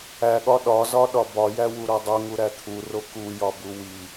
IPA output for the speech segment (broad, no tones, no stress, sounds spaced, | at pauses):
æ ɠ ɒ ɗ ɒ z ɒ ɗ ɒ b ɒ j æ w u ɾ o dˤ u ŋ u ɾ æ t̪ʰ u r o k u j ɒ b u w i